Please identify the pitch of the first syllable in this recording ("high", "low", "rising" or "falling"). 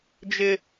high